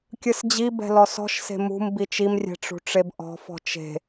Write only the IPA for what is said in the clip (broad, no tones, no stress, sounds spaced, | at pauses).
kʲ ɯ s d͡ʑ i b ɛ̤ l ɔ s ɔ̤ ʃ s e̤ m ṳ m b i t͡ʃ i m rʲ ɛ̤ ʈ͡ʂ ṳ ʈ͡ʂ e b ʔ ɔ̤ f ɔ̤ t͡ʃ e̤